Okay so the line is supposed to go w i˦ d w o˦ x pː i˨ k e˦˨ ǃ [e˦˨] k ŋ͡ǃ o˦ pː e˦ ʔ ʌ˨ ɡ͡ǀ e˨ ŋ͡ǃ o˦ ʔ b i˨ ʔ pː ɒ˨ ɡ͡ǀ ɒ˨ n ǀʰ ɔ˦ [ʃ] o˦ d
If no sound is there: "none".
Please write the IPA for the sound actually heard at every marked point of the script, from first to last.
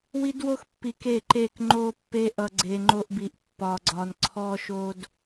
e˦˨, ʃ

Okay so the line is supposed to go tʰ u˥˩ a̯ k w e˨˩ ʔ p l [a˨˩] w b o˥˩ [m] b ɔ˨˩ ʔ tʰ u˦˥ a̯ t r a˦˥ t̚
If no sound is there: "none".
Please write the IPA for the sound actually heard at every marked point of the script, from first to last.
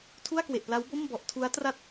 a˦˥, m

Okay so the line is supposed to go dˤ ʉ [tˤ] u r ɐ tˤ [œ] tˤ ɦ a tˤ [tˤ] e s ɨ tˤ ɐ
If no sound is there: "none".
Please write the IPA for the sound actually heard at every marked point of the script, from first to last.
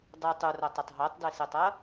tˤ, ɵ, d

